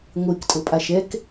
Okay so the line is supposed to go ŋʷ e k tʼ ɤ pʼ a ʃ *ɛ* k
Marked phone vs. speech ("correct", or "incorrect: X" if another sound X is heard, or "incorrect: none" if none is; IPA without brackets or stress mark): correct